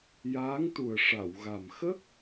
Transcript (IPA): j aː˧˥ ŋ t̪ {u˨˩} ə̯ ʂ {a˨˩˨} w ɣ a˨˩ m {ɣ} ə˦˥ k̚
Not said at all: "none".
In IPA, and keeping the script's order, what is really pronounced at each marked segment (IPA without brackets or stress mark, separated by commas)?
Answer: u˨˩, a˨˩˨, x